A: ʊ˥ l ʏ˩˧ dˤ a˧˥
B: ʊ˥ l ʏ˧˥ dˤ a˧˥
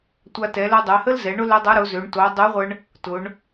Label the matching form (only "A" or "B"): B